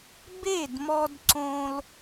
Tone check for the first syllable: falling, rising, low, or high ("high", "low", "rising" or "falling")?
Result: falling